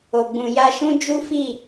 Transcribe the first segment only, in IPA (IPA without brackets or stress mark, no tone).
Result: o